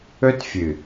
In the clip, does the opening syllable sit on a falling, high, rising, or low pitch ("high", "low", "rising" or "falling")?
high